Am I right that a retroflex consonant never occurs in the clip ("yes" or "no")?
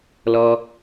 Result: yes